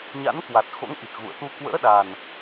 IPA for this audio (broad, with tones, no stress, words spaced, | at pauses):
ɲa̰˧˥nkwa˨˩t̚xo̰˧˥ŋʔi˨˩k̚ ɣṵ˧˨ə̯ t̪u˧kwə̰ː˧˥ɗa˨˩n